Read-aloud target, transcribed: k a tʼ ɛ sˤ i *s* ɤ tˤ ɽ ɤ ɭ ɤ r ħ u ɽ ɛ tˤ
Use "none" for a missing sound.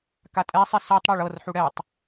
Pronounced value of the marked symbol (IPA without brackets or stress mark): s